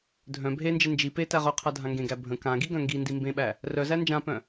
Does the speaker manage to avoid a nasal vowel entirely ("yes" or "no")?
no